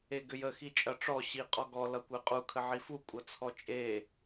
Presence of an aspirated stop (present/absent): present